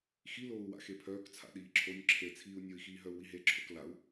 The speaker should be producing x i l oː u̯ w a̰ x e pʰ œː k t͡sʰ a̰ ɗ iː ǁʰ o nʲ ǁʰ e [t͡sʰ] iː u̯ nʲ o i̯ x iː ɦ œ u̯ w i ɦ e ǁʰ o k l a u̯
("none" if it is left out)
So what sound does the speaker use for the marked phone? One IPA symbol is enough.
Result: t͡sʰ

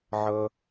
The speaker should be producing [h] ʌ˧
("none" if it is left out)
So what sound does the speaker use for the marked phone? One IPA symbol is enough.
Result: ʕ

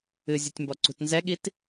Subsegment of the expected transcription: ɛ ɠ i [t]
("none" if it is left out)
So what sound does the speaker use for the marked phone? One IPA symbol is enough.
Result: t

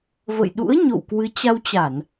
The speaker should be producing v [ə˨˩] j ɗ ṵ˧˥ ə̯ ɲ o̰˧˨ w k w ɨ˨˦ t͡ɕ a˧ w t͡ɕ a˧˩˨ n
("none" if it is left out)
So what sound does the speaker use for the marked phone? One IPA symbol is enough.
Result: ə̰˧˨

